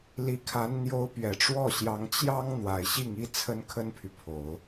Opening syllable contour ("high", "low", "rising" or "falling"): rising